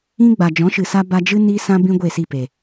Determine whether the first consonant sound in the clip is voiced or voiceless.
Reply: voiced